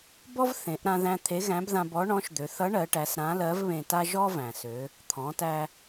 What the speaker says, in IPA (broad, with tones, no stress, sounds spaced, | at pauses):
b ɔ˥ v θ ẽ˩˧ ʔ ɾ ã˧ ð æ̃˧ t̪ʰ e˧˥ ɣ æ̃˧˥ b ð ã˧ b ɔ˧˥ ɳ ɔ̃˧˥ ʃ d̪ ø˩˧ θ ʌ˧˥ ɳ ɜ˩˧ ʈ æ˩˧ s ɾ ã˧˥ l ɜ˧˥ v β ẽ˧ t a˥ ʒ ɔ˥ v æ̃˩ s ø˩˧ | t̪ʰ ɔ̃˩˧ t æ˧